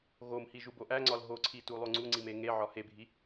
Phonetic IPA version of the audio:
ɣ o m h i ʒ u b o ʔ æ ŋ͡ǀ ɒ l ɦ o ǀʰ i t u lˠ o ŋ͡ǀ u ŋ͡ǀ i m e ŋ e ʕ ɒ h e bʱ i

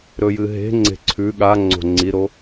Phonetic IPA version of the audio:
ɾ ɵ j ɨ ɦ e̤ ŋ͡ǀ e̤ ǀʰ ʉ ɠ a ŋ͡ǀ o̤ ŋ͡ǀ i ɾ o

